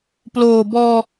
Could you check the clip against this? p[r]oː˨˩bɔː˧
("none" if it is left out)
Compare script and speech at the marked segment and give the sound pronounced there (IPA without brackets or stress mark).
l